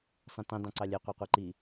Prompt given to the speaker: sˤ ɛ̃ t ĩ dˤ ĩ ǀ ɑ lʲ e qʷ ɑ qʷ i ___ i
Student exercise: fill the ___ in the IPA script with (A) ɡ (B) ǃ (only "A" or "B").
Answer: B